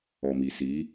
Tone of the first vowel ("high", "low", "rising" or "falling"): low